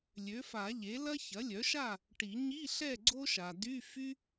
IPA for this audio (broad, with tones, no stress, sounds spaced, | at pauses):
lʲ ø˩˥ f a˨˩˦ ʎ e˩˥ l ɐ˥ ç ɐ˩˥ lʲ œ˩˥ ʃ a˥˨ | ʈ i˨˩˦ ɲ i˧˥˧ ɬ ɛ˥˨ ɡ͡ǀ o˥ ʃ a˨ d y˧˥˧ f y˥